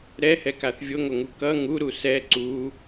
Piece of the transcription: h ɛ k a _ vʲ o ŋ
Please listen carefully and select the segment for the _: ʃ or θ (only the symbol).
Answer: θ